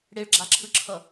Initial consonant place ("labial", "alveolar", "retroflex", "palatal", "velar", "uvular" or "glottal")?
retroflex